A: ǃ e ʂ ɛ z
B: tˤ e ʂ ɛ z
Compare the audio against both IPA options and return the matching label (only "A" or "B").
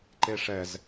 A